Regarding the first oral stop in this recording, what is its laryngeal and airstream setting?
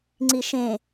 click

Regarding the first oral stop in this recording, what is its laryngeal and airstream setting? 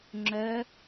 click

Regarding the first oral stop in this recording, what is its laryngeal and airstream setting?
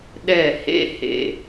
implosive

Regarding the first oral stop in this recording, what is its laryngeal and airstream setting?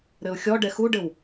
plain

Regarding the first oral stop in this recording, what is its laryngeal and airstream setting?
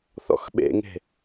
implosive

